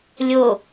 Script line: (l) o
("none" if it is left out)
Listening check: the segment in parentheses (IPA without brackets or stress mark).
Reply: lʲ